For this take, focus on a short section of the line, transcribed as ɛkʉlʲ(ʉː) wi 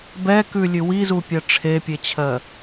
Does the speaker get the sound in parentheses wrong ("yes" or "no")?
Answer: yes